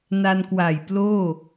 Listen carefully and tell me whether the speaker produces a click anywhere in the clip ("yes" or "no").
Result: no